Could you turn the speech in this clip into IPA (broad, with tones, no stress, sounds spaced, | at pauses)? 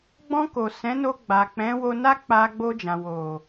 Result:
ɡ͡b ɔ̃˧ k o˨ s ɛ̃˨˦ n o˧ ɡ͡b a˨ k͡p ɛ̃˨˦ w o˧ n a˦ k͡p a˧ ɡ͡b o˧ d͡ʒ ã˨ w o˨